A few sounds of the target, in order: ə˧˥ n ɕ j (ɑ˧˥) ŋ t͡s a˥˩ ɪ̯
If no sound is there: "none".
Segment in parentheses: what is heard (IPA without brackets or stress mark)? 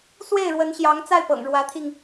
ɑ˧˥